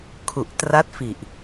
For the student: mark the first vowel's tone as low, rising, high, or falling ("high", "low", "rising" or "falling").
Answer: low